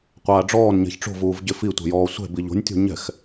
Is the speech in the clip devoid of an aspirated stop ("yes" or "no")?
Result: yes